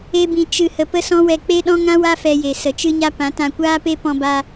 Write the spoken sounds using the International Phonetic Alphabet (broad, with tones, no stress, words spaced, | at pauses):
e˦bĩ˧ t͡ʃɨ˧hə˧ pə˧sɔ̃˧ wɛ˧k͡pe˦ɗɔ̃˦ ŋã˦wa˦ fɛ˧je˨ sə˨t͡ʃɨ˦ɲa˦ pã˨˦tã˧kʷaː˦pe˦ pɔ̃˧ba˧